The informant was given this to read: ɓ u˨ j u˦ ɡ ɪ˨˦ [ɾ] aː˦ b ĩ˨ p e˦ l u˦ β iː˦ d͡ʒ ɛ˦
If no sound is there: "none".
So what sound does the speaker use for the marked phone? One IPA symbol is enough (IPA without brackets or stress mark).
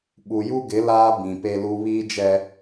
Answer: l